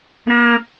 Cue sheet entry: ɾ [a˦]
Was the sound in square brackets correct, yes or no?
no